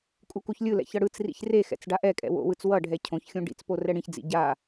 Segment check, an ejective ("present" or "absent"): present